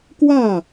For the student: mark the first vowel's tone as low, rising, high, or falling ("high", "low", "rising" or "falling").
falling